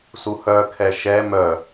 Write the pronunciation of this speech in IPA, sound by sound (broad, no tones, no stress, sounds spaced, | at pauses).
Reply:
s u h œ kʰ ɛ ʃ ɛ m œ